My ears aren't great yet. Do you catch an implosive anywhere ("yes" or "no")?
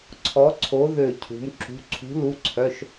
no